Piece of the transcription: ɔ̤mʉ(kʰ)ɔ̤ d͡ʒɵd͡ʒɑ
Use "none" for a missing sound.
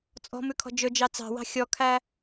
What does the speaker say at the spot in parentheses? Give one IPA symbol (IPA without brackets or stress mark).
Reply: kʰ